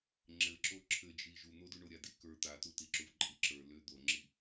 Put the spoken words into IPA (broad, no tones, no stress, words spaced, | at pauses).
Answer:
ŋ͡ǁɘǁo ǁʰɘd͡ʒi ʒun̪odu ɳoɾʲadikə˞ t̪atutiǁuv ǃʼiǁə˞ lʏ d̪oŋ͡ǁi